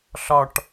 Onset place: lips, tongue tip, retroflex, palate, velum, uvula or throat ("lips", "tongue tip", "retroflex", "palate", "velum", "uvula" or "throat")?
tongue tip